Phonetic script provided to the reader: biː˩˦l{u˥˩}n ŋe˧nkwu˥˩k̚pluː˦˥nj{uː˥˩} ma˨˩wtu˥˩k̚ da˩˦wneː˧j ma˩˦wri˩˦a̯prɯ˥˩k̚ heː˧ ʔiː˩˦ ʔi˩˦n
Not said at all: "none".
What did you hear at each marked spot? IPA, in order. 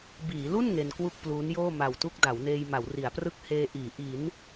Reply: u˥˩, oː˥˩

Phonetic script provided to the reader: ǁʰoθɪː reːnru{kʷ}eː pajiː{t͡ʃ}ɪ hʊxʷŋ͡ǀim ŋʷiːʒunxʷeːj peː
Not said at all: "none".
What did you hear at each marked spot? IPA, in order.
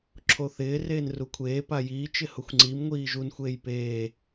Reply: kʷʰ, t͡ʃ

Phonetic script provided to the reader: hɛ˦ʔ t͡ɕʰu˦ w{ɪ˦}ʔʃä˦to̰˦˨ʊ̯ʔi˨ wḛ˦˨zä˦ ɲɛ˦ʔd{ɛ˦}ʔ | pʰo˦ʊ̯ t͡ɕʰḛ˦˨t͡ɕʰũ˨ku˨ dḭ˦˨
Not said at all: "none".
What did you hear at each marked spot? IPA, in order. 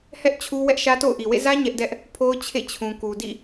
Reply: ɛ˦, ɛ˦

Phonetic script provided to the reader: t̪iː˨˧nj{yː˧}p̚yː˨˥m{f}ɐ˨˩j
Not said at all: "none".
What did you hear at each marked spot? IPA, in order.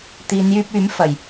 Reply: yː˧, f

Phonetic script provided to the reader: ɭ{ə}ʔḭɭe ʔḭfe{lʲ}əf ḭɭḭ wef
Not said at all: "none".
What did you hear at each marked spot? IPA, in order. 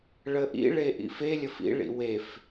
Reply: ə, lʲ

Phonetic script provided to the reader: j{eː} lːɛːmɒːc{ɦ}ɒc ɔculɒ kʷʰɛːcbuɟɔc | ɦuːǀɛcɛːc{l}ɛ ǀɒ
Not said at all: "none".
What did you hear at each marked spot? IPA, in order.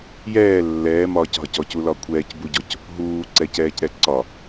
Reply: ɛː, ɦ, ɾ

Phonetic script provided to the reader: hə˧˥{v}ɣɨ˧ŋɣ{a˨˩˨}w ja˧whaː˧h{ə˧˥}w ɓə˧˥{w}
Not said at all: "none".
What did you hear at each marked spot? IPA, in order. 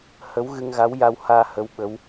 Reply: w, a˧˥, ə˧˥, w

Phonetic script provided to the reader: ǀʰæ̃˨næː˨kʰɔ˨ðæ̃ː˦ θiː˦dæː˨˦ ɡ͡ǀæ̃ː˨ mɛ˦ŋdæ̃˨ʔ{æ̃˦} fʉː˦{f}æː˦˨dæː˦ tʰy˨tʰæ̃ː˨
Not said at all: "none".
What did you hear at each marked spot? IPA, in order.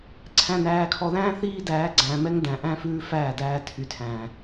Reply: æ̃˦, f

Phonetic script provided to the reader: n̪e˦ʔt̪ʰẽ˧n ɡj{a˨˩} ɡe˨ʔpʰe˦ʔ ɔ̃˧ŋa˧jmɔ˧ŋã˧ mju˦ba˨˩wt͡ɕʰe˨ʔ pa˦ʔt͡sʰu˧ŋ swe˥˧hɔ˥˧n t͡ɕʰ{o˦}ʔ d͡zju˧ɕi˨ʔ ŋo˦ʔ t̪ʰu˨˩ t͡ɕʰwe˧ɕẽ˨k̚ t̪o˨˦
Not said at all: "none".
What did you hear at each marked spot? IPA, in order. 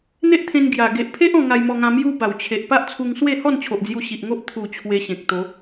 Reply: a˨˩, o˨

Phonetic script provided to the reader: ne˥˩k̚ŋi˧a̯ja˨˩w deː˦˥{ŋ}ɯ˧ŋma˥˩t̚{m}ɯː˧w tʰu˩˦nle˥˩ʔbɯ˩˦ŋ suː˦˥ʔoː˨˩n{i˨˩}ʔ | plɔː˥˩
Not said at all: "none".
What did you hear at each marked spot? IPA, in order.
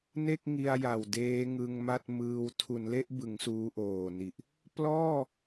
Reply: ŋ, m, i˨˩

